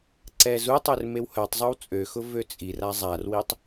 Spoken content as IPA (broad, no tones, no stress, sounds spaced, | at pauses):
ǀ ɛ z u tˤ ø r m e w h œ tˤ zˤ o w t͡sʼ ø x ʊ v ø t͡sʼ i r a zˤ a r w i tˤ